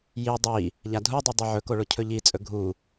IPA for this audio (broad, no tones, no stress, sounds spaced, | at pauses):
j i dˤ i | ʎ a dʱ u dˤ u dˤ i ʕ ɵ k o ɭ o cʰ ɵ ʎ i t͡sʼ ɵ ɡʱ u